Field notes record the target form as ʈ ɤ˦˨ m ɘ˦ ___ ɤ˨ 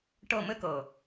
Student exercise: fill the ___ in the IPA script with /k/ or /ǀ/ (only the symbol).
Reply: k